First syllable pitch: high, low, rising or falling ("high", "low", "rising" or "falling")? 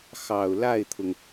low